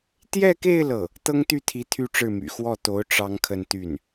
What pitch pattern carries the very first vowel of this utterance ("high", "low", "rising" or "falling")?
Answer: falling